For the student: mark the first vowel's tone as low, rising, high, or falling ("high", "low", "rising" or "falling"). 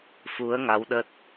rising